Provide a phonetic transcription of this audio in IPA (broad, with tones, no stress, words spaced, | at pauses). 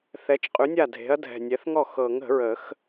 θɛ˩˥t͡ʃqʼʉ˩˥nʲa˥˩dʱe̤˩˥ɐ̯ dʱɛ̤˨˩nʲɛ˩˥θŋɔ˥˩ xɤ˨˩˦ŋə̤˨˩˦ɹə˨˩˦x